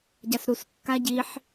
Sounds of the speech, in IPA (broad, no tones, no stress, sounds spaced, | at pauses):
ɟ a s ɾ u s kː a ɟ i ħ